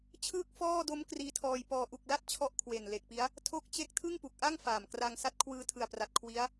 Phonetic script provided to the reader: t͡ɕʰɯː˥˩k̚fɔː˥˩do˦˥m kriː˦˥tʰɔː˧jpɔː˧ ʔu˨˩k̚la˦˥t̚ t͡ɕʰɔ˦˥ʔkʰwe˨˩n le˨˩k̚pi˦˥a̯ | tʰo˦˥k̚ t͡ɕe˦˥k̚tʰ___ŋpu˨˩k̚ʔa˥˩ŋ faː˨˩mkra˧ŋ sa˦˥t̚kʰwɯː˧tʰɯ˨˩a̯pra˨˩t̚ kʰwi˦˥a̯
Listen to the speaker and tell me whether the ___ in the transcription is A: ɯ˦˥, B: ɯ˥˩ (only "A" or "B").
B